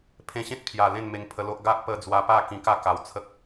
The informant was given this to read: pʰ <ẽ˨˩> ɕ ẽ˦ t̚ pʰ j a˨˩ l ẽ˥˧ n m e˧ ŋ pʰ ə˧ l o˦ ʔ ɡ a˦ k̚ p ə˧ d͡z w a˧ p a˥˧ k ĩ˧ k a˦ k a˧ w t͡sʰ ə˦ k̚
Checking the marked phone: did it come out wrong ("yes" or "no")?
yes